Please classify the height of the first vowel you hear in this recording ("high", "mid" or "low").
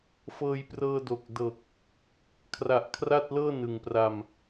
mid